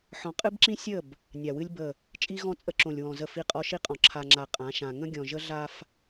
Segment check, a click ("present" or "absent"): present